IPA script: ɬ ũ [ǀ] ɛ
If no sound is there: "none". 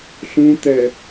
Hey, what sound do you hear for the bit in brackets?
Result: t̪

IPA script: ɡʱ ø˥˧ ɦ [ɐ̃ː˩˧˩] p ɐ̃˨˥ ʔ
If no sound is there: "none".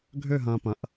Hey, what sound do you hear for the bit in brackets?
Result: ɐ̃ː˧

